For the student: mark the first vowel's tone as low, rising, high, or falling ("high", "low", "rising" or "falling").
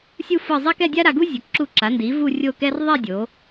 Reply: falling